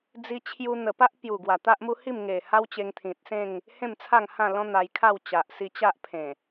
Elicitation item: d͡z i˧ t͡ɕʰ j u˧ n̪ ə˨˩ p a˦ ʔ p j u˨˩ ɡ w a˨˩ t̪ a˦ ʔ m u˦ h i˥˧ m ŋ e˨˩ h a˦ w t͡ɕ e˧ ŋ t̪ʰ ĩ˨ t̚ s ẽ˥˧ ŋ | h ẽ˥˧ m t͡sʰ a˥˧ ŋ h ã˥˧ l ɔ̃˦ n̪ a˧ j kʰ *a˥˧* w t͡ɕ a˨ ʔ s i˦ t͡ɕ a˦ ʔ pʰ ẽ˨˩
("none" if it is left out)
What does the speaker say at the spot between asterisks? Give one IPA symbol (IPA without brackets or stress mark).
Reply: a˥˧